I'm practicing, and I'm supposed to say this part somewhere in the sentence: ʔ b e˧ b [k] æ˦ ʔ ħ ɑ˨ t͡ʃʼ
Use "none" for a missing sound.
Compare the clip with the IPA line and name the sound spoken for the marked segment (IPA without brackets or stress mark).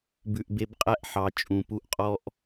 qʼ